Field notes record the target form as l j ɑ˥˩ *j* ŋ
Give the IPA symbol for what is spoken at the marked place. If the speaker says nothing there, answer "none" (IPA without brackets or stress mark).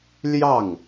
none